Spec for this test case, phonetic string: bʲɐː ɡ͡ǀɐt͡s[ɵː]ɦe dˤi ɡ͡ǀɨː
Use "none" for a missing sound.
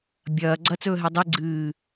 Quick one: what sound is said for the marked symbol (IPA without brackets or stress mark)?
ɵː